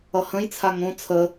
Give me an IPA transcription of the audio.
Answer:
ʌ h ə̃ j t͡sʰ a ŋ õ t͡sʰ ə

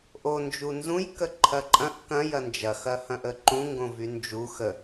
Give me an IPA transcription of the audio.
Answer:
ʔ o n d͡ʒ u n z ũ j k ə ǃʰ ɐ ǃʼ ɐ̃ ʔ k ɐ̃ j ɐ n d͡ʒ ɐ x ɐ h ɐ̃ ʔ ə ǃ ũ ŋ ɡ õ v y n d͡ʒ u x ə

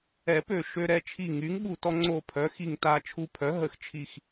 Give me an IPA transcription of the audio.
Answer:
ɛ˨˩˦ p ø˧˩ ʃ ø˧ ɾ ɛ˧ t͡ʃʰ i˧˩ ŋ y˩˥ ŋ ɓ u˧˩ t ɔ˧ ŋ͡ǀ o˧˩ pʰ œ˩˥ x i˧˩ ŋ t a˧ t͡ʃʰ u˧˩ pʰ œ˩˥ ɦ ə˨˩˦ x t͡ʃʰ i˧˩ x

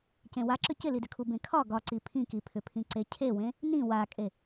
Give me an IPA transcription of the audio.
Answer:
c ẽ w a ǁ ʏ c ɪ l i d ʏ kʰ u b ẽ kʰ ɒ ɡ ɒ ǀ i pʰ ĩ k i pʰ ʏ pʰ ĩ ǀ e cʰ e w ẽ | n ĩ w a kʼ e

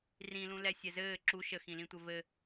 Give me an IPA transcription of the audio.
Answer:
r ĩ l ũ l ɛ sʲ ɛ z ɘː ǁ u ʃ ə x ĩ l ĩ tʷ ɘ v ɘ

